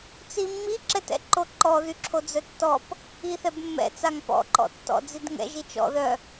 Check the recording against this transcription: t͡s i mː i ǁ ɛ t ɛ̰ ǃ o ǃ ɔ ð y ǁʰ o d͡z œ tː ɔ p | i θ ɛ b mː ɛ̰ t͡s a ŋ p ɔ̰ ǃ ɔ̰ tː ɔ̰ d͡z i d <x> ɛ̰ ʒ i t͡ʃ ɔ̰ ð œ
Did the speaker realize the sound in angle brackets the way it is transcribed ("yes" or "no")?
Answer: no